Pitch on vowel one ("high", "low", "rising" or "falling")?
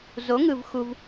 rising